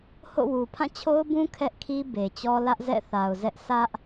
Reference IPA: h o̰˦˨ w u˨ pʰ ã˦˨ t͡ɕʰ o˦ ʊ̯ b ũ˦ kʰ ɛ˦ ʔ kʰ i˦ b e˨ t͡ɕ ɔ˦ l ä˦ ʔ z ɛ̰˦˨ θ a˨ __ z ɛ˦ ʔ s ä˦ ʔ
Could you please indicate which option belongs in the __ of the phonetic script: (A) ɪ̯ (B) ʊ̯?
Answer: B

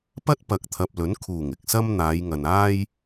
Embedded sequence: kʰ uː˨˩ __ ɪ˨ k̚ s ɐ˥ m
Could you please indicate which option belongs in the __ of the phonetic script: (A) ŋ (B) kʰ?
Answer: A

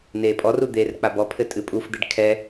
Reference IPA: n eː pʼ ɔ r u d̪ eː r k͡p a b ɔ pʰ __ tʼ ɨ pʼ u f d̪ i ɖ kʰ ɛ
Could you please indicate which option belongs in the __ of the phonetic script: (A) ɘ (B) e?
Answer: A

